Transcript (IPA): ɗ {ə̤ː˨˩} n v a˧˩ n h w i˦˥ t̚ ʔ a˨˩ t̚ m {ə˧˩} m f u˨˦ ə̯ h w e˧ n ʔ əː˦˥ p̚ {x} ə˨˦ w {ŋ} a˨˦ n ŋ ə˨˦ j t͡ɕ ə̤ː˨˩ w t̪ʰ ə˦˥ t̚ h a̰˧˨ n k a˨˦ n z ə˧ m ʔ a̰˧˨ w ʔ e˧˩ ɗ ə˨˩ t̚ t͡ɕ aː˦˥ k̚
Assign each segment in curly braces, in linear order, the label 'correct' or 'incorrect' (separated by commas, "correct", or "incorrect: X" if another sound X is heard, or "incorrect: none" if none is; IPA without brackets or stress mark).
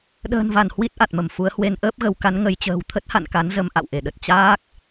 correct, correct, incorrect: ɣ, incorrect: k